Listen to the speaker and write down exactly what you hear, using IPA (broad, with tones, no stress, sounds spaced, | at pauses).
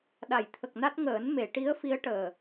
ɗ a˨˩˨ j t̪ʰ ə˨˩ k̚ n a˦˥ t̚ ŋ əː˨˩˦ n m e˨˩˨ ʈ i˧˥ ə̯ f i˧˥ ə̯ ʈ əː˨˩